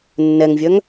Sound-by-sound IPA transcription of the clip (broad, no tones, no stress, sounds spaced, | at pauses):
nː ɛ ŋ vʲ œ ŋ